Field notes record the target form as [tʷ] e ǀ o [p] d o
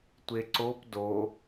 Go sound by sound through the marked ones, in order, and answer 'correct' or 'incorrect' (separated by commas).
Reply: correct, correct